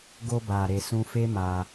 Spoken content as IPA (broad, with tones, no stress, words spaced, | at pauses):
ɡo˧ba˨ɾe˨ sũ˧fe˦ ma˧